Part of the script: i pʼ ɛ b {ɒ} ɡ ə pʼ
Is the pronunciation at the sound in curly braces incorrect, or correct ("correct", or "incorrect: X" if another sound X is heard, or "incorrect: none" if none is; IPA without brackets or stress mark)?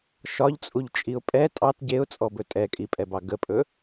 incorrect: ɑ